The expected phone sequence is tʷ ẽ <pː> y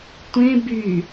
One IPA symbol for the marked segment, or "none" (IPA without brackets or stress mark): b